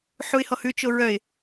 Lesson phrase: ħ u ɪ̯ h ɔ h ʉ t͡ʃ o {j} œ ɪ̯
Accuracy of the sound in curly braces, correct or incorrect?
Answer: incorrect: ɹ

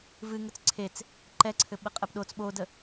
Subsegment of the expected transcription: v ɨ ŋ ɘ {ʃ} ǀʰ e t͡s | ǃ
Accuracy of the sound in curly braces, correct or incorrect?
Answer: incorrect: t͡s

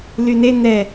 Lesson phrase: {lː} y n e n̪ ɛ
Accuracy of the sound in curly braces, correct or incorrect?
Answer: incorrect: l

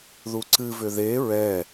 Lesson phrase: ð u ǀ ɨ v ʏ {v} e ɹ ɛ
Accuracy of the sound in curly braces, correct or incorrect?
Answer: incorrect: ð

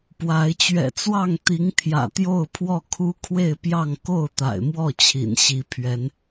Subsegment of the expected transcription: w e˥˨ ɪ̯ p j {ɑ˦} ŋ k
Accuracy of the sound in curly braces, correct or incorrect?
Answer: incorrect: ɑ˥˨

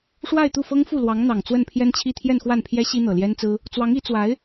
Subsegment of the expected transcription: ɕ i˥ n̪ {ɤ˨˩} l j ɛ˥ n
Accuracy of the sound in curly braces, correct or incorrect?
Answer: correct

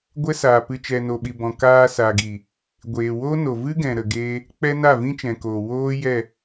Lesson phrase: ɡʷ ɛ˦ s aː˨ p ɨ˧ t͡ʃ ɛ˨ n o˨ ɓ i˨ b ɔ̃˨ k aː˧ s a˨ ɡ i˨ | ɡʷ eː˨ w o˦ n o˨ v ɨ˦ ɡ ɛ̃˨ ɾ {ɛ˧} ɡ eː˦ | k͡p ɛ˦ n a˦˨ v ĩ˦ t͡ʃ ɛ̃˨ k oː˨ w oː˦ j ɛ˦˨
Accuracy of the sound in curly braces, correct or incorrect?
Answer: incorrect: ə˧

